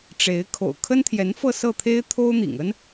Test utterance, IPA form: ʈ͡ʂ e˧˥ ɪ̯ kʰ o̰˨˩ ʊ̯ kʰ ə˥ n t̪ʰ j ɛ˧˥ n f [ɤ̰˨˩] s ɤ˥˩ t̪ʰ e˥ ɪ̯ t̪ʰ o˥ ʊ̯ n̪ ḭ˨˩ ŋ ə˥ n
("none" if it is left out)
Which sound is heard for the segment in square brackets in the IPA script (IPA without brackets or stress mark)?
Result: ɤ˥˧